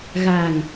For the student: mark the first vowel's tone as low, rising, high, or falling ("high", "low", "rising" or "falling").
low